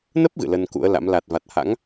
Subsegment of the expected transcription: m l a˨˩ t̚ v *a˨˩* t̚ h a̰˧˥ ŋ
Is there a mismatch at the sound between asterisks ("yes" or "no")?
no